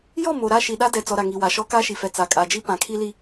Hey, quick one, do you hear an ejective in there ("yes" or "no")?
yes